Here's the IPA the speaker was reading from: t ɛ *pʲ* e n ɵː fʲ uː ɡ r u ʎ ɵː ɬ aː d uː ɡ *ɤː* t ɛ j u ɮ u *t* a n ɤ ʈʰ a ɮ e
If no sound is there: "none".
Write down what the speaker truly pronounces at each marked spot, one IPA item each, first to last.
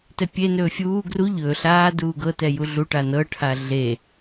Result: pʲ, ɤ, ʈ

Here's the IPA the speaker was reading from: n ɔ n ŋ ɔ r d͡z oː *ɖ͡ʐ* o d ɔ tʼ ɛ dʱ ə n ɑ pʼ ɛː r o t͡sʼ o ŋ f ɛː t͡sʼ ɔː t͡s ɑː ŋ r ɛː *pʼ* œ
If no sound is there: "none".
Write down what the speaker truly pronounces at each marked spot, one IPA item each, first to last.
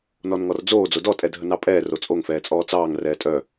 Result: d͡z, tʼ

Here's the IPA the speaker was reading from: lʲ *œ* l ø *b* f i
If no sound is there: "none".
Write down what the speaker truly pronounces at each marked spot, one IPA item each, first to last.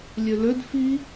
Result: ø, d

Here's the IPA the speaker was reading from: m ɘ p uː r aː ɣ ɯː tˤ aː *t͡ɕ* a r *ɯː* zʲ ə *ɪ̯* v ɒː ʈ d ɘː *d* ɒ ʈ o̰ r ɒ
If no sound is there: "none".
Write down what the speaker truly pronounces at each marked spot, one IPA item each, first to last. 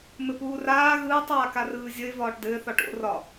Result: k, ɯː, ɪ̯, θ

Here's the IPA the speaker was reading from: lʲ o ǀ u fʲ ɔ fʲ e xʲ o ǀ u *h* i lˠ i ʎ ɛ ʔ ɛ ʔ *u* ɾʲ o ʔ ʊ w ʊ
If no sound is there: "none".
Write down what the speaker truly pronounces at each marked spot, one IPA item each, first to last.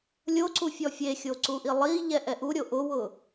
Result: ʔ, u

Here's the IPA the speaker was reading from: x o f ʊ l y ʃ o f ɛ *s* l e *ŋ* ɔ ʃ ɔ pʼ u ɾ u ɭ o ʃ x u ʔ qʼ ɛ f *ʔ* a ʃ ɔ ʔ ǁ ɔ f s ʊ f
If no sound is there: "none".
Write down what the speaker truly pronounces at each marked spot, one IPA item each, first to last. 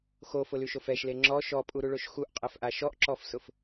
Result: ʃ, ŋ͡ǁ, ʔ

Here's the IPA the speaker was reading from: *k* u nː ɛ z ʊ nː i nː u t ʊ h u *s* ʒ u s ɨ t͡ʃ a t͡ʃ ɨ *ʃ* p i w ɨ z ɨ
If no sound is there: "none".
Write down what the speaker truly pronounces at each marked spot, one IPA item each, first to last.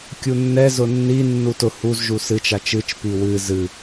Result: kʲ, z, t͡ʃ

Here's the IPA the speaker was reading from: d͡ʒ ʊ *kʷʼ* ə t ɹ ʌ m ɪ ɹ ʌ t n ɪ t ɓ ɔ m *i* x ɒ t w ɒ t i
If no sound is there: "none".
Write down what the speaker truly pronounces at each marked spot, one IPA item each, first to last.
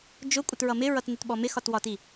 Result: kʷʼ, ɪ

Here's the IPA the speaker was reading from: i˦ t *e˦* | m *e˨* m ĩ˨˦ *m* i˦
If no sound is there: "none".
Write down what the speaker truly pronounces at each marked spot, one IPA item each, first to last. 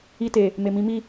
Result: e˨, e˨, m

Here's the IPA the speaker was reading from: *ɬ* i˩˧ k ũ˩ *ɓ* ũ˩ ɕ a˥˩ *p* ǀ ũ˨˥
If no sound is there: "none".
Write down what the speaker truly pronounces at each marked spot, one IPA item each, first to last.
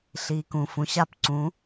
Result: ɬ, f, p

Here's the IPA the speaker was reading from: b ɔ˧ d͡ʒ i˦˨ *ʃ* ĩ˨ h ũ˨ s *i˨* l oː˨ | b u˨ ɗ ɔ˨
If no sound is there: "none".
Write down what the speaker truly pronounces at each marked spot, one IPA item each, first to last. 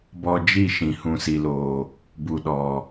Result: ʃ, i˨

